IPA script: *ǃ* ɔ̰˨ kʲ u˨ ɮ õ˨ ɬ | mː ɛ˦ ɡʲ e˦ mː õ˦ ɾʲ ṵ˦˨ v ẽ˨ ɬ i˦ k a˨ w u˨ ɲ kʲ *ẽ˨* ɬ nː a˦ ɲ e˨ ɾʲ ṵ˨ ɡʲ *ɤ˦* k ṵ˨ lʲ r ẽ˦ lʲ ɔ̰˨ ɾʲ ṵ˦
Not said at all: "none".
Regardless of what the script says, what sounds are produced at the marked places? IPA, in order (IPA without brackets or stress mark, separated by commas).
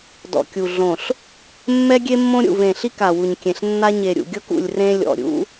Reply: d, ẽ˨, ɤ˦